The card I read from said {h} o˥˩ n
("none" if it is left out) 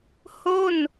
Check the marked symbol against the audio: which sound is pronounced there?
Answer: h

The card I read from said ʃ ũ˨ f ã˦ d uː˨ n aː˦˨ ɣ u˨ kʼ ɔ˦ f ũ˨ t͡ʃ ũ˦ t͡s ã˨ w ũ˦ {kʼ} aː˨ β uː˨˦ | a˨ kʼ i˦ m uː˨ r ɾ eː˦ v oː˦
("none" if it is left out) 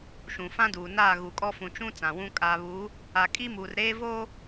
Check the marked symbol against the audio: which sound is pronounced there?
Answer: kʼ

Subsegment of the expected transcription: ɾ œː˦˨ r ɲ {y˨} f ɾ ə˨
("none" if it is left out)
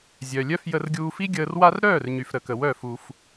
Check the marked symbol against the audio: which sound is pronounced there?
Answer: y˨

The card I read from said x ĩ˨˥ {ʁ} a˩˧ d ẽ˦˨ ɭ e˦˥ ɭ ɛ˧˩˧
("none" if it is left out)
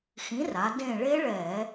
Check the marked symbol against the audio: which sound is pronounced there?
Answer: r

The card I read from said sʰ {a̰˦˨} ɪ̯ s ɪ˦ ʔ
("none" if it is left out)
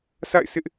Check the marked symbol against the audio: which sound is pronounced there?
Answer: a̰˦˨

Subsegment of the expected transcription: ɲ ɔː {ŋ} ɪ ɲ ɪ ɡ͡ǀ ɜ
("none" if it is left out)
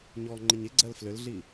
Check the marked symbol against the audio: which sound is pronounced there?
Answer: ŋ͡ǃ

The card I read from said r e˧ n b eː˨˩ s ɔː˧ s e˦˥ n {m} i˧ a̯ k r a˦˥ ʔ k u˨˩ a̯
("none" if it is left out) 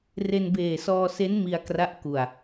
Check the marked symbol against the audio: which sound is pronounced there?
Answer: m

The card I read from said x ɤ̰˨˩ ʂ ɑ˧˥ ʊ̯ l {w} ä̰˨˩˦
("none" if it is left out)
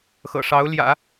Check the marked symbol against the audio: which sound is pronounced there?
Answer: j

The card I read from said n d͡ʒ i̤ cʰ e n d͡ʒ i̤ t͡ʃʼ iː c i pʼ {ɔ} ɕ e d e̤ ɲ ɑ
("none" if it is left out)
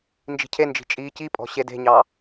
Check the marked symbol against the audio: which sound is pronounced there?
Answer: ɔ̤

